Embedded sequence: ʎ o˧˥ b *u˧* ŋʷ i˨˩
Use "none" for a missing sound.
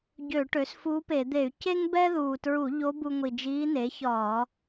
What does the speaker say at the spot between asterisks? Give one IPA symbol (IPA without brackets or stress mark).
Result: u˧